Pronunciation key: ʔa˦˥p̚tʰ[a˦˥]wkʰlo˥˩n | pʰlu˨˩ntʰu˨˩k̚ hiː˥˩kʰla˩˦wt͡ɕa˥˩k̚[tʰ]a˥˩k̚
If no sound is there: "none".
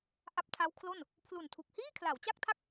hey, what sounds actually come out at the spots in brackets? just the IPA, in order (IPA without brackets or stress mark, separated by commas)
a˦˥, tʰ